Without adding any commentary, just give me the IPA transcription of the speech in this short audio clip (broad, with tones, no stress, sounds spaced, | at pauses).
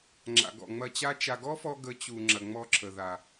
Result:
ŋ͡ǁ a̰˨ ɡ ɔ̰˨ ŋ͡m ɐ˧ t͡ɕ a˦ t͡ʃ a˧ ɡ ɔ˦ f ɔ˧ ɡ ə˨˦ t͡ɕ u˨ ŋ͡ǁ ɐ˨ ŋ͡m ɔ˧ ǁʰ ə˨ ð a˨